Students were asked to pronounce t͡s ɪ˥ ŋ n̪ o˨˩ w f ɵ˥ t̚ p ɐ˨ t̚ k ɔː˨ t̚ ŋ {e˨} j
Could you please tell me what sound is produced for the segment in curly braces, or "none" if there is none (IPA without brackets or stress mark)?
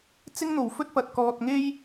e˥